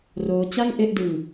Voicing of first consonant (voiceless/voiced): voiced